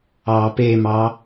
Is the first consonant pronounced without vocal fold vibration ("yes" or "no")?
yes